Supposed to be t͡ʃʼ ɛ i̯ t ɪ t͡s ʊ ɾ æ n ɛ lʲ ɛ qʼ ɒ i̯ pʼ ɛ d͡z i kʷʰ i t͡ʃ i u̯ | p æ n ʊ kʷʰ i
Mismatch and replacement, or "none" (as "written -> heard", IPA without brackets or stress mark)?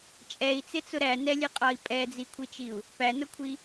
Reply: t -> t͡s